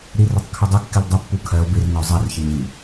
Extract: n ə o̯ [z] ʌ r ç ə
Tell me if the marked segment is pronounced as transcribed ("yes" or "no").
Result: no